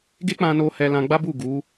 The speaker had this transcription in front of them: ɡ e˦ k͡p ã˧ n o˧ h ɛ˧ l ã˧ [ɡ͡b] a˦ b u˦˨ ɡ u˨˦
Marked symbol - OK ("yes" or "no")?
yes